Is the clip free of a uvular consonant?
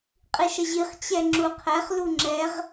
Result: no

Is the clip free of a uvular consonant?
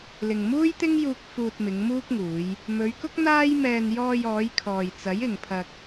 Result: yes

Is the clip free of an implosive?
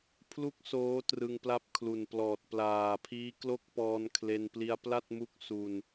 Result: yes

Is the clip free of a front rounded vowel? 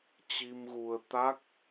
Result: yes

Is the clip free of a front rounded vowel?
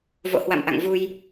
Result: yes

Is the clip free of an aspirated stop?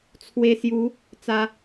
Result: no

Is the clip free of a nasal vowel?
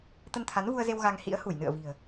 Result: yes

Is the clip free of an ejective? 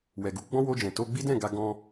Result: yes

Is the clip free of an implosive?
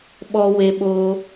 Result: no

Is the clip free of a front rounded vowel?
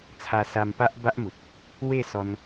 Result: yes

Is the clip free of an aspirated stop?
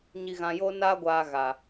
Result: yes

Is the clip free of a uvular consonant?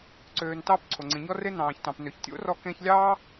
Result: yes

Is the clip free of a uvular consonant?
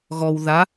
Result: yes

